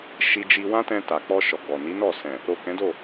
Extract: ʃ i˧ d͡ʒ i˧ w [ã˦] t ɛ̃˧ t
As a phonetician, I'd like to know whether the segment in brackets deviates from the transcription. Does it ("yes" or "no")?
no